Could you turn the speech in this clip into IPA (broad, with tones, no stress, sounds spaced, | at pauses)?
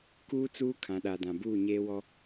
k uː˦ t͡s uː˦ kʰ ã˨ ɗ a˨ d ã˨ b uː˦˨ ɲ eː˦ w ɔ˦